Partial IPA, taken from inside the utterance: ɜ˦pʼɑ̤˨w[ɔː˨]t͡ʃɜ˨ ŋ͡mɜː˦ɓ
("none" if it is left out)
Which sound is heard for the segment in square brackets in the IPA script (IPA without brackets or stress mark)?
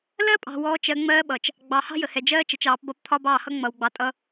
ɔː˨